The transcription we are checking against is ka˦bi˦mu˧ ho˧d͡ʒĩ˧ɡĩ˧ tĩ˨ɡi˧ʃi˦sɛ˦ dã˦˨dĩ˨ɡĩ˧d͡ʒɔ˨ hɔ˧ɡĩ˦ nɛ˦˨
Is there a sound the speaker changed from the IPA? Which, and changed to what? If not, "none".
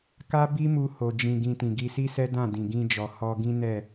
ʃ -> s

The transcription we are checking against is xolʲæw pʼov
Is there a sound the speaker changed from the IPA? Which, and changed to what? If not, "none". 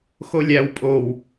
v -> w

